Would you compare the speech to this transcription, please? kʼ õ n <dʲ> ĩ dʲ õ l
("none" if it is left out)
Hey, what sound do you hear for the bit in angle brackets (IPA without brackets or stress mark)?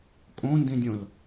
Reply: d